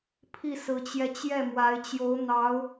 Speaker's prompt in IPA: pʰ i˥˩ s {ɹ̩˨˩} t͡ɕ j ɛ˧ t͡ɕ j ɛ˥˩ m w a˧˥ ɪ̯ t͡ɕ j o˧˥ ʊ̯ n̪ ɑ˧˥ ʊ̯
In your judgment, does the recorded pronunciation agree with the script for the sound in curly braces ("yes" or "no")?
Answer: no